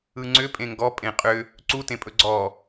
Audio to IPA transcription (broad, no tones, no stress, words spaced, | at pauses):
ɯŋ͡ǀʏ pʼẽŋɡɔ pʼẽqʼʏ | ǀu tẽpʼɵɡ͡ǀɔ